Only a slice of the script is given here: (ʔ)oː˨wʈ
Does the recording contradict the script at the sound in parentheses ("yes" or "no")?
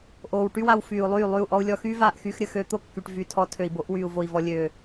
no